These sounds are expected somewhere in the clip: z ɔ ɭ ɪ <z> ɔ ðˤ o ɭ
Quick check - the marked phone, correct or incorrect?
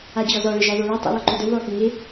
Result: incorrect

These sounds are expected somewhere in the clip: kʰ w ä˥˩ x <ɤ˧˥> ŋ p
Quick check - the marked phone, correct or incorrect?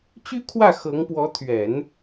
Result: correct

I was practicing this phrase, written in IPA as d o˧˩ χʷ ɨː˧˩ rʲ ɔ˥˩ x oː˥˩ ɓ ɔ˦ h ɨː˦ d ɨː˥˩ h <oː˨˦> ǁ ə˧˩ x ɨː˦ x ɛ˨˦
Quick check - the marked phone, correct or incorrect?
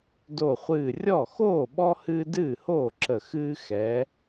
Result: incorrect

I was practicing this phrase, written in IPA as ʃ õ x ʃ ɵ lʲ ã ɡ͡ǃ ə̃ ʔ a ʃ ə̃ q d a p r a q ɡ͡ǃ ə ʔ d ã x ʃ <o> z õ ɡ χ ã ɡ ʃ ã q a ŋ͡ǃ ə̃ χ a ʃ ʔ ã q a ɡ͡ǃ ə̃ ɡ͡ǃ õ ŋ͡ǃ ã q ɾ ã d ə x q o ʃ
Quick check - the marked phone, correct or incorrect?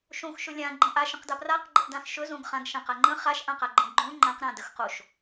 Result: incorrect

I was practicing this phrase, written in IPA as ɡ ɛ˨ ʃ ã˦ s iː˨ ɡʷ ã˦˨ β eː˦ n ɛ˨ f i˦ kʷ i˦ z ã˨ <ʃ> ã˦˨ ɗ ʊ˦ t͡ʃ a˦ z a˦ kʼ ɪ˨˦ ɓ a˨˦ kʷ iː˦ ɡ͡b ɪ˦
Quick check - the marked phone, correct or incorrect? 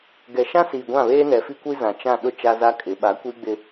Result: incorrect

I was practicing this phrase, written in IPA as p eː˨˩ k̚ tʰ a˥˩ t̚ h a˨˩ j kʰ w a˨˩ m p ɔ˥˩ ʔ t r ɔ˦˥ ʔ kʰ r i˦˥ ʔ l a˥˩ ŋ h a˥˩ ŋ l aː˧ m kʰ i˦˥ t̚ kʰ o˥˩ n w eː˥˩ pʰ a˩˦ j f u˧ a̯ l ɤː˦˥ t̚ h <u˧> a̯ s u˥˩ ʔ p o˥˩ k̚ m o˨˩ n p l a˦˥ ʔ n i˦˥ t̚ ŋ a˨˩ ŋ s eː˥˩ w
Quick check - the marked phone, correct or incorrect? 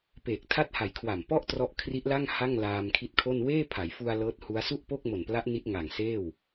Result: incorrect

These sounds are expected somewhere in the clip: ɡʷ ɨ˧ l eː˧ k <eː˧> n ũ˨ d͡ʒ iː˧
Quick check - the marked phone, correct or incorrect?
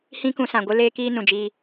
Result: incorrect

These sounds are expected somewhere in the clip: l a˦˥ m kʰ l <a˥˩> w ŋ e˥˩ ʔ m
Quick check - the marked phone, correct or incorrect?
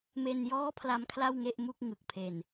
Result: correct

